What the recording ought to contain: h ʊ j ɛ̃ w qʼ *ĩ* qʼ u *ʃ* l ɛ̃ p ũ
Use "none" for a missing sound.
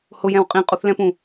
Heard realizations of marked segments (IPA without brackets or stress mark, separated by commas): ĩ, θ